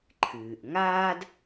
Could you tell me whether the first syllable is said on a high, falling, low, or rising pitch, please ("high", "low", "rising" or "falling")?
low